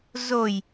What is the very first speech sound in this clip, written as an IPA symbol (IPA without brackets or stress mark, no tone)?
z